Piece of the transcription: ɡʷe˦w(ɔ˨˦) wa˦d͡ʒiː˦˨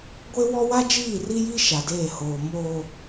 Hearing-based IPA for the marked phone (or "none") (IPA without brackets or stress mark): ɔ˦